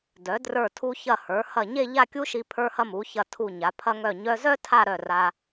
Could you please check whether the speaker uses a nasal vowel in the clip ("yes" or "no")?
no